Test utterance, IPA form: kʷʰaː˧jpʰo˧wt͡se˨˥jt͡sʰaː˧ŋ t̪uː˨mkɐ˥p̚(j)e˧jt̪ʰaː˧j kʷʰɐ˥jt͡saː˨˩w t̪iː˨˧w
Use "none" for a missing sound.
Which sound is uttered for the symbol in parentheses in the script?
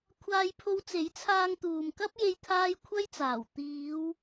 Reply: j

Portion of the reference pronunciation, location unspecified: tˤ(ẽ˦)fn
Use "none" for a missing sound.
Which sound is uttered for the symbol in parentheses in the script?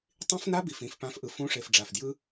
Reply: ĩ˦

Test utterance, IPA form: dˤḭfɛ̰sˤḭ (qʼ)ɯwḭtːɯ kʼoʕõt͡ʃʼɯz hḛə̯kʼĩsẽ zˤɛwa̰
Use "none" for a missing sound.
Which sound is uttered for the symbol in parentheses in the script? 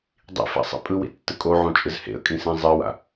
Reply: pʼ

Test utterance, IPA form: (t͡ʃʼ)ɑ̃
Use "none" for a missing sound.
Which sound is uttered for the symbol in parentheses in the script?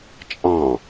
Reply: t͡ʃʼ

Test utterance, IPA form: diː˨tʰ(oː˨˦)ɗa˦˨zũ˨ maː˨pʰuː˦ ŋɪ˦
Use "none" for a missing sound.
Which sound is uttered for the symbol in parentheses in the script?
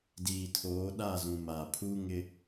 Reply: oː˨˦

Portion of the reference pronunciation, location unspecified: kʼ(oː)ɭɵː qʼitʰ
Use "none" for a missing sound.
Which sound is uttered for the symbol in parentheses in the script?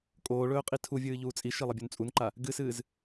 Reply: oː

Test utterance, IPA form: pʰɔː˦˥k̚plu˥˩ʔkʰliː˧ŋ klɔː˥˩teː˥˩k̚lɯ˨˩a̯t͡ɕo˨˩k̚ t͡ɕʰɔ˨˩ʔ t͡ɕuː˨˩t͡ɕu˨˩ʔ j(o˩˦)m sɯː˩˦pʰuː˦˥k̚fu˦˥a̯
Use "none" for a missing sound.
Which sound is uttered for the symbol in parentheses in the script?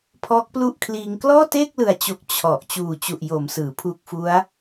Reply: o˩˦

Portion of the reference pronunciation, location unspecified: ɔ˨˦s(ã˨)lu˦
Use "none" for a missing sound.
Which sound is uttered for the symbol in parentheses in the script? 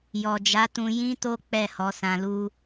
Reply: ã˧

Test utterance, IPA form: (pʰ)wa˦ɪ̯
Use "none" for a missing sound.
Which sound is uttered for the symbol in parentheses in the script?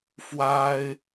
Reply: f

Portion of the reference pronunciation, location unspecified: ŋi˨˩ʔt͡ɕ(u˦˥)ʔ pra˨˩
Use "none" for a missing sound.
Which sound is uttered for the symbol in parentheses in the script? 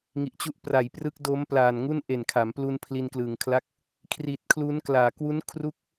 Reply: u˦˥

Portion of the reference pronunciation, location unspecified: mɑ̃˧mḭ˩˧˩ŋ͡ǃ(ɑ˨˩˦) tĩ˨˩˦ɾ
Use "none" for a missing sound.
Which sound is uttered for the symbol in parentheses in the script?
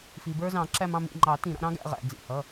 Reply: ɑ˨˩˦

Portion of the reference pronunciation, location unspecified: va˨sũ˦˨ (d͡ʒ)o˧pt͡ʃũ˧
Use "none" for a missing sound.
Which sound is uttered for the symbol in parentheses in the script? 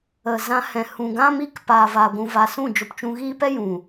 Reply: d͡ʒ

